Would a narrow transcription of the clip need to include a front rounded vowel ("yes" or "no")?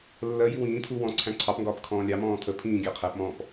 no